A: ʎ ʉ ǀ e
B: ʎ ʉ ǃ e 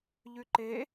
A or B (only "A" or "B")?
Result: B